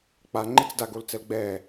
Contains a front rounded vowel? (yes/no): no